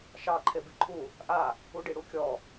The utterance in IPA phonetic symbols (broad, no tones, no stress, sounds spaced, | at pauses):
ʃ ɑ ǃʰ e b i ǃʰ u | ʔ a | u ɖ i ɽ u kʲ ɔ